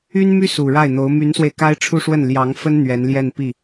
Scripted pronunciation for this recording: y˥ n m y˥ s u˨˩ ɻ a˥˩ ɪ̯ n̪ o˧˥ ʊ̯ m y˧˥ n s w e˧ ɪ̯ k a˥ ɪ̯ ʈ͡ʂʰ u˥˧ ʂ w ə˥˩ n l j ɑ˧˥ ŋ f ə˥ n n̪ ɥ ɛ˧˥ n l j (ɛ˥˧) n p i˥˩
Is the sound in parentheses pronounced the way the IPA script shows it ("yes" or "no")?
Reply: yes